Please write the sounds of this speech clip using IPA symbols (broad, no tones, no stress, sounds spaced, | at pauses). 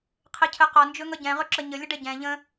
qʰ e cʰ ə q ɒ n d͡ʒ ɵ ŋ ʌ ɟ ɛ̃ ʁ ɵ ǁ ə ɲ ə lʲ ʌ ɖ ɛ ɟ ɛ̃ ʎ ə̃